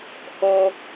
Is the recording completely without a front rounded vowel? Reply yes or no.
yes